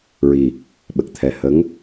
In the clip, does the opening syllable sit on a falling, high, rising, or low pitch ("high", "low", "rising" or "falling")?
low